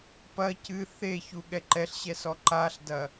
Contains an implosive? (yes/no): yes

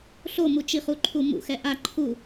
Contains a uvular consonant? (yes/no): yes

